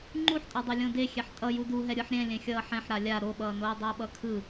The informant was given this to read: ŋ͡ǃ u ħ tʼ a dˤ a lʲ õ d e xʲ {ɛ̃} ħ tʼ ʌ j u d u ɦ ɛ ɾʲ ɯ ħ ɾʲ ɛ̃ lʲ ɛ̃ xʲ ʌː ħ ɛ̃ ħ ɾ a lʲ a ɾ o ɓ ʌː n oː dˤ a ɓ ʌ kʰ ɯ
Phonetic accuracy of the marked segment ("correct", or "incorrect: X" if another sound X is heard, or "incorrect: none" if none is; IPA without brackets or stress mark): incorrect: ɛ